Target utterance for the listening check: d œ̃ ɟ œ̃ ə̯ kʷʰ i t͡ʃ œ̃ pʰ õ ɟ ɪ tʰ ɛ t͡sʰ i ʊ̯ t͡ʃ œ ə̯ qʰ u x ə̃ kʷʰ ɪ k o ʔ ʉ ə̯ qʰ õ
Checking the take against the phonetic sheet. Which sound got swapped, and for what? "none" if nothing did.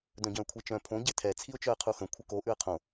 none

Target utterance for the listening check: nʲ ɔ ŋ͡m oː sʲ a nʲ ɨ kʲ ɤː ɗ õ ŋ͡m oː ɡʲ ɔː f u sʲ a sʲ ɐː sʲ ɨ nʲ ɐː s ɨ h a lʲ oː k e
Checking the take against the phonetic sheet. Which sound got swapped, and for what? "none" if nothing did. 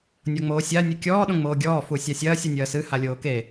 ɤː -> ɔː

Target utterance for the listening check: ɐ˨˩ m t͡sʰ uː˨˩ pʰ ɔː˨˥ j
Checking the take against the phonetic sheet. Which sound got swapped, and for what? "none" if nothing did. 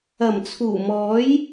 pʰ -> m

